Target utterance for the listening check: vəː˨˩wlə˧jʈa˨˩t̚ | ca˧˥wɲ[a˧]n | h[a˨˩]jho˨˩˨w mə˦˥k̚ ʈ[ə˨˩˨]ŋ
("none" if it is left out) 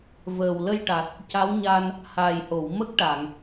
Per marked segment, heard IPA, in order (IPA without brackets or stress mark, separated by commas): a˧, aː˨˩, a˨˩˨